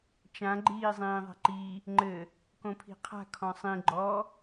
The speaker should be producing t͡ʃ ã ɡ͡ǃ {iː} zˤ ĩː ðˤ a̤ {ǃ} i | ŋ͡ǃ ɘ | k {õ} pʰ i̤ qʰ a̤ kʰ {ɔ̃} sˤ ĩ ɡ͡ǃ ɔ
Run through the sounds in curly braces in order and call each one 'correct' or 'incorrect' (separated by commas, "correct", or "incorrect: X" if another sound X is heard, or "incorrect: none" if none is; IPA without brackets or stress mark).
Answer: correct, correct, correct, correct